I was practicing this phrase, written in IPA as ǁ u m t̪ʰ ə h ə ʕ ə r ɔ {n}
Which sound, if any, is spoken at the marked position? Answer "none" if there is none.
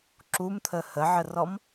m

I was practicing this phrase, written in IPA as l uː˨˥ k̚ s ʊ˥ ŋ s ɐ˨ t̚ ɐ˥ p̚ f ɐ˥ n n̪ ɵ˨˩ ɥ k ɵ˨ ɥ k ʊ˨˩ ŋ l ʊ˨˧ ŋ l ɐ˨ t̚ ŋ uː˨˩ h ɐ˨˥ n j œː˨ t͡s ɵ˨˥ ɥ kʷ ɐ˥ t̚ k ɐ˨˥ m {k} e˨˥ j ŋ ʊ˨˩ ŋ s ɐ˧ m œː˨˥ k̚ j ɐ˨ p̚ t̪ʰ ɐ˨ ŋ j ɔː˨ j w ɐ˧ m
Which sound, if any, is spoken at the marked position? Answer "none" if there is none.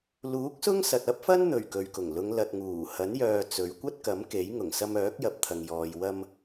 k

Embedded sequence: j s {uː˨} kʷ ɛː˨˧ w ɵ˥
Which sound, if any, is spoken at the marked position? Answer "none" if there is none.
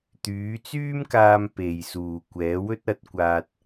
uː˨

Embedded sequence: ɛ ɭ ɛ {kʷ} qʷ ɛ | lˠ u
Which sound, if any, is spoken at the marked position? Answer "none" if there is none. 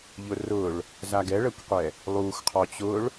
kʷ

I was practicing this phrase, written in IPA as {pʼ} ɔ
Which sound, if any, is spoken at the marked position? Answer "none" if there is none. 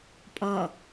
pʼ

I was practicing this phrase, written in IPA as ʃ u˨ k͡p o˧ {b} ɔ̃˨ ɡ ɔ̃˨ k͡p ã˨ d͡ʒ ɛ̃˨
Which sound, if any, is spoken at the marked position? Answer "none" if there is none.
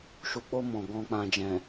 m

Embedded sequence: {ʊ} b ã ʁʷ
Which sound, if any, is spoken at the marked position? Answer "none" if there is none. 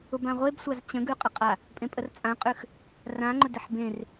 ʊ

